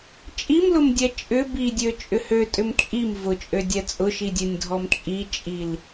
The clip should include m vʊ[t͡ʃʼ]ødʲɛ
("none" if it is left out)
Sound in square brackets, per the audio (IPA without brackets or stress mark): t͡ʃʼ